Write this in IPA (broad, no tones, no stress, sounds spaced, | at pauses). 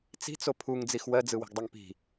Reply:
t͡s i̤ t͡s o pʰ u ŋ d͡z i x w ɜ d͡z ɯ w i̤ ɡ dˤ ɜ ŋ p i̤